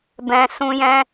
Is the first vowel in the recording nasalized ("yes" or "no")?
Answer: yes